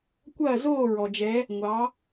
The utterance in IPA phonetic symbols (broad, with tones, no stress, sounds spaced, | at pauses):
kʷ ɐː˦˨ z oː˦˨ ɹ ɔ˩ d͡ʒ ɛ˩˧ | ŋʷ ɑ˩˧